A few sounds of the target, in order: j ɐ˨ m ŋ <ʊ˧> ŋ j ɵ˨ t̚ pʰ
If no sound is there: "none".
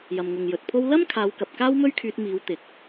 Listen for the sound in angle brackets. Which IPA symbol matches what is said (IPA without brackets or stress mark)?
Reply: ʊ˨